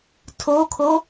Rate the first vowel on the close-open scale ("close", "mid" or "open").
mid